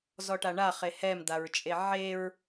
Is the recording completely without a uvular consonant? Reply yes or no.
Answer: no